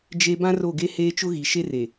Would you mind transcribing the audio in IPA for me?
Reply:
d͡ʒ e˦ b ã˦ r o˦˨ ɡ e˦ h eː˦ t͡ʃ ʊ˦ ɣ i˨ ʃ e˦ r e˨

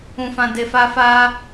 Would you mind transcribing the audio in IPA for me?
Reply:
ũ˧ f ã˧ d e˧ f a˦ f a˦

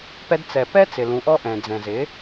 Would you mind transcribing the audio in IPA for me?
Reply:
p ɛ˧ d t͡s ɛ˨ p ɛ˦ t͡s ɪ˨ l ũ˨˦ ʔ ɔ˦ ʔ ɛ̃˨ d͡z ɛ̃˨ z ɪ˨˦

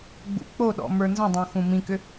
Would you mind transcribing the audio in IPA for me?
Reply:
ɡ͡b ṵ k͡p o ɗ ɔ̰ m ə˞ n z ə̃ dˤ õ x ũ m ĩ k ʏ

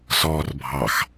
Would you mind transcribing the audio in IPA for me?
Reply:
s ɔː r bʱ ɑ x

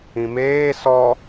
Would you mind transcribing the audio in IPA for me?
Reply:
ĩ m eː s ɔ

